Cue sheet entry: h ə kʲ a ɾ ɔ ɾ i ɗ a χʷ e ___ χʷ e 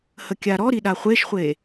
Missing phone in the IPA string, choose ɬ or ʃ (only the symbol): ʃ